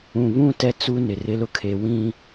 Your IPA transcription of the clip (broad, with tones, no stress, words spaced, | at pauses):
ũ˨βũ˦ tɛ˦t͡su˦ nɪ˨rɪ˦ lʊ˦kʰe˨ wĩ˦